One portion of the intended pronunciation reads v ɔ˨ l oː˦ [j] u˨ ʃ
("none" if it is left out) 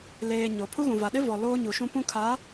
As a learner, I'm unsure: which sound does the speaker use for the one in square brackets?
ɲ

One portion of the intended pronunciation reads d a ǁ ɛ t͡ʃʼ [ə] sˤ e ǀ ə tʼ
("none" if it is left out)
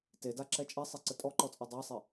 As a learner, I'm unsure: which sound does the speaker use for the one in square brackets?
ɛ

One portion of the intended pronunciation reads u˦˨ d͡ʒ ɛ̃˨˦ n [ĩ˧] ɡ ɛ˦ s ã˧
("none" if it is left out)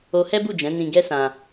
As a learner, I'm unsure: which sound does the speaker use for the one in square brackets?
ĩ˧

